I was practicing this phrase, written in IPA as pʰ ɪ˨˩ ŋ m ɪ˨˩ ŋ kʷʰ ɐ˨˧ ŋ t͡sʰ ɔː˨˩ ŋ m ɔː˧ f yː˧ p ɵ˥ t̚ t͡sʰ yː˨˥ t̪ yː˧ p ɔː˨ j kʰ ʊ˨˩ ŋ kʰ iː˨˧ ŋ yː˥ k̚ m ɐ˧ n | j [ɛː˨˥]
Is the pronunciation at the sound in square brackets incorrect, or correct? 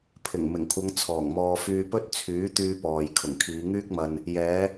incorrect